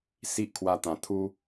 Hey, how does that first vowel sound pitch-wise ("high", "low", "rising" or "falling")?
high